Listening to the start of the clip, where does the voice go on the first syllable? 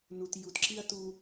low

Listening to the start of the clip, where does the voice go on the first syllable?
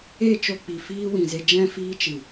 falling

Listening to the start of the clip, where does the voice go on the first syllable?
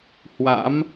rising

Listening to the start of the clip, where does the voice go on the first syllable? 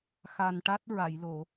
low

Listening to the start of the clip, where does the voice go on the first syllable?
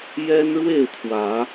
high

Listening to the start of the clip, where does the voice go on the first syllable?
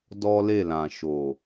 high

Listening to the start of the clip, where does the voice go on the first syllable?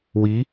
rising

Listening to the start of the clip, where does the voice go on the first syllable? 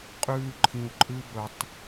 high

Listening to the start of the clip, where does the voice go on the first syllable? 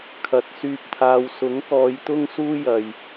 rising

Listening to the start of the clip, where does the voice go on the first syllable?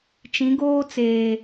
rising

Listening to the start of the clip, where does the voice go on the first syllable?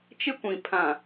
high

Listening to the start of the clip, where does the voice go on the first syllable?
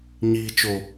low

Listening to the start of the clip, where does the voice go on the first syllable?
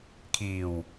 low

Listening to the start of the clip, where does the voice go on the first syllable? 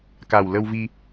low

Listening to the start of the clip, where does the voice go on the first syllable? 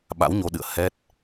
rising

